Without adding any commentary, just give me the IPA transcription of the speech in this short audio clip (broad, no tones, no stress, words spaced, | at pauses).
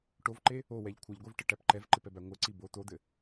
ʈovǃe | owɛʎ kʷʰɘʎɡʷɛvʈɘʈæp ǃɛvǃɪpɛbæ ŋʷɘǀi bo t̪od̪ɘ